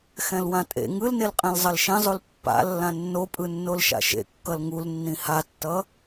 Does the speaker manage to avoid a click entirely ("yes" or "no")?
yes